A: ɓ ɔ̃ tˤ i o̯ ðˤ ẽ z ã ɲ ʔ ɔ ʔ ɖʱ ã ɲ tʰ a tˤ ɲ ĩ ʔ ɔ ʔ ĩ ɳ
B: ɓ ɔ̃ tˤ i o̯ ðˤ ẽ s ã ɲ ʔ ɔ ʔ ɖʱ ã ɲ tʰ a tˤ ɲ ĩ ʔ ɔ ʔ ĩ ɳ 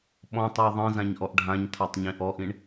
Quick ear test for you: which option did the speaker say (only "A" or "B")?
A